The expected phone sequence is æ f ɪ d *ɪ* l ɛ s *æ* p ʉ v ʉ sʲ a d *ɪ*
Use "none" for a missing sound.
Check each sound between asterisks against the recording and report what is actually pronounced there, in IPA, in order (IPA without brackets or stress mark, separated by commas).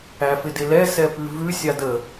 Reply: ɪ, ɛ, ə